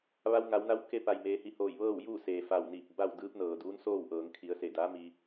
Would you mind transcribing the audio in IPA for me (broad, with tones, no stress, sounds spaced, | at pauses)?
ʋ a˧ w ŋ a˩˧ w n a˧˥ w k e˧ p a˩ j m eː˩˧ h i˩ h oː˧˩ j ʋ ɤː˥˨ w j uː˥˨ s eː˩ f a˧˩ w n iː˧˩ p̚ b a˥˨ w d ɯː˧˥ p̚ n ɤː˩ d uː˧˥ n s oː˥˨ w ʔ ɤː˩˧ ŋ kʰ i˩˧ ə̯ s e˧˩ d a˧˥ m i˧